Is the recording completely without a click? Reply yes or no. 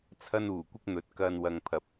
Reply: yes